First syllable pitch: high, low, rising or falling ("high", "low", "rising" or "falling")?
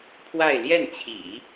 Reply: falling